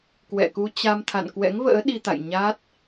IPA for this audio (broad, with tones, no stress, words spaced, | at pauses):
kwɛ̰˧˨ku˧ t͡ɕa˧mt̪ʰa̰˧˨n kwɛ̰˧˥ŋvə̰ː˧˥ ɗi˧t̪a̰˧˨j ɲa˦˥t̚